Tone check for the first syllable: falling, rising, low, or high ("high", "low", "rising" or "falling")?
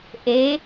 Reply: rising